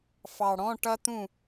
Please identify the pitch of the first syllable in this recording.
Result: low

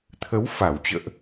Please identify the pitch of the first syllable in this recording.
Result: rising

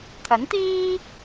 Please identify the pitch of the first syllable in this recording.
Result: rising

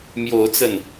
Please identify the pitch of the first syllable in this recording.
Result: rising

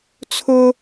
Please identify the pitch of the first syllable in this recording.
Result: high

